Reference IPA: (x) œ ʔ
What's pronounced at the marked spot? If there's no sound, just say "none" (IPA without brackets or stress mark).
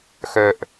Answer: x